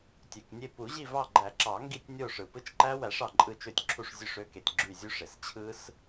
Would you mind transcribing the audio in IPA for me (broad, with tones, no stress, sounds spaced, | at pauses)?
tʲ ø˩ k nʲ e˦˨ p u˨˩˦ ʑ i˦˨ v ɑ˦˨ ɡ͡ǃ æ˨˩˦ ǁ ɑ˨˩˦ ŋ ɡ i˦˨ tʲ nʲ o˦˨ ʂ ɯ˩ p ɯ˦˥ t͡ʃ ǃ æ˦˥ w æ˨˩˦ ʂ ɑ˩ ǃʼ ɯ˦˨ t͡ʃ ø˦˨ tʲ ǁʰ u˦˨ ʂ zʲ ø˦˨ ʂ ø˦˥ k e˩ tʲ ɡ͡ǁ y˦˨ zʲ u˦˥ ʂ e˩ s t͡ɕʰ ɯ˦˥ s